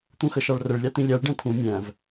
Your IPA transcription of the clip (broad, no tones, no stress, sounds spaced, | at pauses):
t̪ ũ x ə ʃ ɑ ɭ r ə ɭ lʲ ɑ t̪ ĩ lʲ æ ɭ ɖ ɛ̃ t̪ʰ ũ mʲ æ̃ v